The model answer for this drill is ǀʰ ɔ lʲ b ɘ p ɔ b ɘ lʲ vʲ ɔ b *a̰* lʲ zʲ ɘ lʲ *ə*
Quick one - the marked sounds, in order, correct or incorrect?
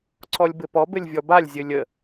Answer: incorrect: a, correct

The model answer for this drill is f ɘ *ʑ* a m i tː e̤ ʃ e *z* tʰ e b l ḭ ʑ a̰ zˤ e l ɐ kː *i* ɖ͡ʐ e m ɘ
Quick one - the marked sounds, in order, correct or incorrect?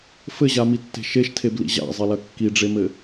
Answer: correct, incorrect: ʃ, correct

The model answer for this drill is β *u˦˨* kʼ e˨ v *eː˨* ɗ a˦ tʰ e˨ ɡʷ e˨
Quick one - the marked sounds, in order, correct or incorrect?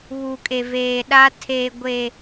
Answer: incorrect: u˨, correct

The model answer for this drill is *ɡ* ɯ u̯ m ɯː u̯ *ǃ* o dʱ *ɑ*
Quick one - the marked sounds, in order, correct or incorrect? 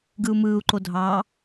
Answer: correct, correct, correct

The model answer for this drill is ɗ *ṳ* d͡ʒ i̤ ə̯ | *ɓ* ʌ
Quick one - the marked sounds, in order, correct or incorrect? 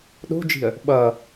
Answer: incorrect: o̤, correct

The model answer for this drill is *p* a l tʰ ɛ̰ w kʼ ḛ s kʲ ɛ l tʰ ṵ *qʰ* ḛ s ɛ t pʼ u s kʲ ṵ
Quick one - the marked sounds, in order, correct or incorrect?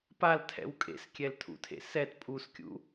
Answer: correct, incorrect: tʰ

